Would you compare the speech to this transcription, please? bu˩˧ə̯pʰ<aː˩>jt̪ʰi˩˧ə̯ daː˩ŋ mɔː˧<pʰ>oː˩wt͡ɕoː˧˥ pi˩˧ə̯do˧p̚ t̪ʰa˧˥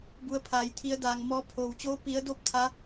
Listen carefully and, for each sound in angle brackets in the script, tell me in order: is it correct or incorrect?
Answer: correct, correct

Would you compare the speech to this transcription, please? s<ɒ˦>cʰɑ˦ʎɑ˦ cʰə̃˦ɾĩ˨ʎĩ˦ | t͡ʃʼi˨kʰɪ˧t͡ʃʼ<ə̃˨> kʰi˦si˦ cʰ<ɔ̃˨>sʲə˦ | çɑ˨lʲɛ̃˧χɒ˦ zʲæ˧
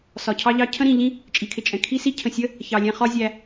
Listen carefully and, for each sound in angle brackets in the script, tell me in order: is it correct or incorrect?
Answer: incorrect: ɒ˨, incorrect: ɛ̃˨, incorrect: ə̃˨

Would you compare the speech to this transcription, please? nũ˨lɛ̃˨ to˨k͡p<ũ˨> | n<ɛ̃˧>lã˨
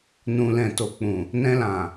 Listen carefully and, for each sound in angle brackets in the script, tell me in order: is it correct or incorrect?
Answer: correct, correct

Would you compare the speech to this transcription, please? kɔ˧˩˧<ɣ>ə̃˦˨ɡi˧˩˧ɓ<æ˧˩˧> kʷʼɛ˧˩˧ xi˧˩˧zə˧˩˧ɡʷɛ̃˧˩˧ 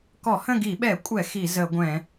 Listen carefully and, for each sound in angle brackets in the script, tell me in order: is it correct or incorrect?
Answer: incorrect: h, incorrect: ɛ˧˩˧

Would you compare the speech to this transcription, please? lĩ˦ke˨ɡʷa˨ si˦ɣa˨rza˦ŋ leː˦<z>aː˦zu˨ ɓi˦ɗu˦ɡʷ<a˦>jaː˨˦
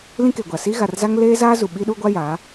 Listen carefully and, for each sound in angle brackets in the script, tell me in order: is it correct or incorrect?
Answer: correct, correct

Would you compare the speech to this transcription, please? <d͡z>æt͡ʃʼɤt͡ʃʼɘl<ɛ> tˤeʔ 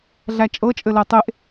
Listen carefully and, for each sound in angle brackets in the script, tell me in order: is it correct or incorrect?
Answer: incorrect: ɮ, correct

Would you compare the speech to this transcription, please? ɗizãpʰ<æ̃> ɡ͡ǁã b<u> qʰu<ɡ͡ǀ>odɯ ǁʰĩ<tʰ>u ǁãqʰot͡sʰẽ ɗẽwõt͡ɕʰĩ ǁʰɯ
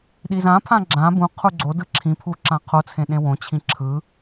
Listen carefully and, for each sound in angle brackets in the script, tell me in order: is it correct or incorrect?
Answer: incorrect: ã, incorrect: ũ, correct, incorrect: pʰ

